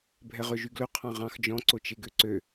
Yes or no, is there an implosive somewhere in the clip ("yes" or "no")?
no